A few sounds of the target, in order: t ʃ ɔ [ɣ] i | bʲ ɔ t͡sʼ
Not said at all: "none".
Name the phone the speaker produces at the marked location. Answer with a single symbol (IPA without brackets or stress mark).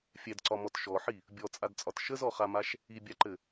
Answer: ħ